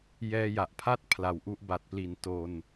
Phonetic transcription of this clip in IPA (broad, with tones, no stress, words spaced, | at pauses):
jɛː˧ja˨˩ʔpʰa˥˩t̚ pʰla˨˩wʔu˥˩ʔ ba˨˩t̚pli˨˩n to˧n